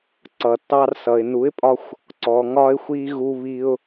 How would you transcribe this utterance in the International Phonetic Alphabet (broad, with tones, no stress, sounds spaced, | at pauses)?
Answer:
ǀ ʌ˨ tː ɑ˧ r s ʌ˨ ɪ̯ n u˨˦ ɪ̯ pʼ ɒ˧ xʷ | ǀ ɔ˨ ŋ ɒ˧ ɪ̯ xʷ i˧ ɣ u˧ β i˧ ʊ̯